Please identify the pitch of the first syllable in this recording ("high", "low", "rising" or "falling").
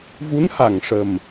rising